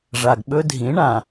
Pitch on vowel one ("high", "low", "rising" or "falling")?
low